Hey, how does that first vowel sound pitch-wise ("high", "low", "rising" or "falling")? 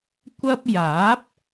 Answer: high